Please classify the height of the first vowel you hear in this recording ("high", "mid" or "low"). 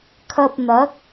low